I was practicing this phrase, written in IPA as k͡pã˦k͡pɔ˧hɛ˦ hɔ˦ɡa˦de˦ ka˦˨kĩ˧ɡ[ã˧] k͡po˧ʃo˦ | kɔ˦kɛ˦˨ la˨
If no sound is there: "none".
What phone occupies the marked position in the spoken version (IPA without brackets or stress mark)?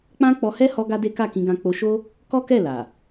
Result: ã˧